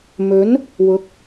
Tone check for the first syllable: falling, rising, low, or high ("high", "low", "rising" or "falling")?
rising